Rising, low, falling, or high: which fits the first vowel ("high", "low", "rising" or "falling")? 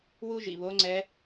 high